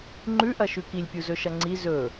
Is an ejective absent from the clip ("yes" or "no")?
yes